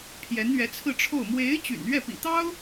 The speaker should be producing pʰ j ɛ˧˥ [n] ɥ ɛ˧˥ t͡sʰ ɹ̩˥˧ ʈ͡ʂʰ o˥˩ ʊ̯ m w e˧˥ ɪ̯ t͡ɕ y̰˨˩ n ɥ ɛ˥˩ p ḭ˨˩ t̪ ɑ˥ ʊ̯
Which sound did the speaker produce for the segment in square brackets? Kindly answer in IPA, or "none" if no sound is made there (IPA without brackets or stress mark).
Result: n